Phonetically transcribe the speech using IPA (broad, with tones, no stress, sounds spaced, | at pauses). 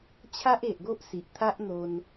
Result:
t͡ɕʰ a˦ ʔ e˨ ʔ ɡ o˦ ʔ s i˨ ʔ t̪ʰ a˦ ʔ n̪ o˧ n